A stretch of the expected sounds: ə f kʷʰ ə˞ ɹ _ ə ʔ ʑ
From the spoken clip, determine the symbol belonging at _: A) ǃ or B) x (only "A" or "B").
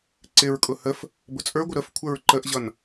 A